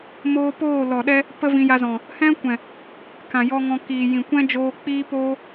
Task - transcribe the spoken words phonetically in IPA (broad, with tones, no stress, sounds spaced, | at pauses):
m oː˧ p oː˦˨ l ɔ˨ ɗ ɛ˧ | p ə˦ v ĩ˧ j a˧ z ɔ̃˨ | h ɛ̃˦ kʷ ɛ̃˨ | k ã˨ j ɔ˧ ŋ ɔ̃˧ k iː˨ j ĩ˨ kʷ ɛ̃˦ d͡ʒ oː˧ k͡p iː˦ p oː˦